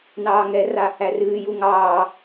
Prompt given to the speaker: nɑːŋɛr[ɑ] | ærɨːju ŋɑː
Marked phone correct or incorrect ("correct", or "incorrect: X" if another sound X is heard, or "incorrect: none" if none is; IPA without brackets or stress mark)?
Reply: incorrect: a